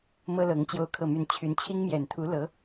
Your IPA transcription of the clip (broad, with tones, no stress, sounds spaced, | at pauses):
m ɤ˥ l ɤ˧˥ ŋ t͡ɕ j o˥ ʊ̯ kʰ ɤ˥˧ m y˥˩ n t͡ɕʰ y˧˥ n t͡ɕʰ i˥ ŋ m j ɛ˨˩ n t̪ʰ u˧˥ l ɤ˧˥